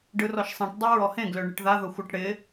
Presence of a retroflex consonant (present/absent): present